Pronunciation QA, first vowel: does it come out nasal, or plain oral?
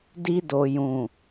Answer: oral